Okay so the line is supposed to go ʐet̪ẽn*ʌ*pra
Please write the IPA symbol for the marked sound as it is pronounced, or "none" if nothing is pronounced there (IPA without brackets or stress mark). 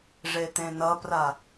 ʌ